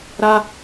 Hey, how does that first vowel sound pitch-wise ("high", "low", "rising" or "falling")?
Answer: high